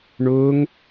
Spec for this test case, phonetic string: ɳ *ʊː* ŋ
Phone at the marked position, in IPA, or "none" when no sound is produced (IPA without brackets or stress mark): ʊː